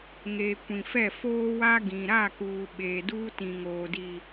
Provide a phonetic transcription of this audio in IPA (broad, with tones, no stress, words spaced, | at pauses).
ŋeː˨ kʷĩ˨fɛ˦˨ foː˦wa˦ ɡĩ˨ ɾa˦˨kuː˨ ɓeː˨duː˦tĩ˨ŋoː˨ di˨